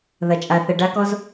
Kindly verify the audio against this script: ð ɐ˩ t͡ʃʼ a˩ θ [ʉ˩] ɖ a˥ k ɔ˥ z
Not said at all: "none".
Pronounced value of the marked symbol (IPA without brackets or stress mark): ə˩